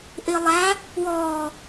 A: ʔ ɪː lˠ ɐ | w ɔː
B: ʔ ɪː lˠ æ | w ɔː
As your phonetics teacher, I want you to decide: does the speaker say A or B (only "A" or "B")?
B